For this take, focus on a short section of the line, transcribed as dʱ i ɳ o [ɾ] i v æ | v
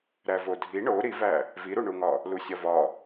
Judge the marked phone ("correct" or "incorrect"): correct